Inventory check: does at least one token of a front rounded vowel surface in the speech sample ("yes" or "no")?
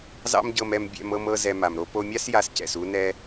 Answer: no